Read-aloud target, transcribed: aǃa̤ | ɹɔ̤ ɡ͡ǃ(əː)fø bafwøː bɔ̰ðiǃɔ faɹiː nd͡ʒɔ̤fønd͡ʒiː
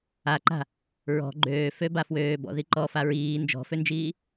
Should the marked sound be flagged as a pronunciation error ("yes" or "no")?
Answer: yes